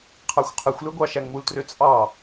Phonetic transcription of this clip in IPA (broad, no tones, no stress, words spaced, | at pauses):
qʰɑxʷqʰɯxʷlø ɡʷɑʃæŋmultrø t͡sʼɑ